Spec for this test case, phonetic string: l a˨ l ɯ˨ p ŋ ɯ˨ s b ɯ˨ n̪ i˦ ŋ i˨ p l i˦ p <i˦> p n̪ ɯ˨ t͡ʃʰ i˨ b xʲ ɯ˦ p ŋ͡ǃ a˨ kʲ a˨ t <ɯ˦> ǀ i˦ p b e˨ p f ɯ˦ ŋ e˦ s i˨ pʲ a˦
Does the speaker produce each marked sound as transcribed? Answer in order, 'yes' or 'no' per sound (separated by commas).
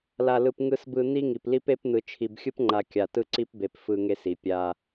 no, yes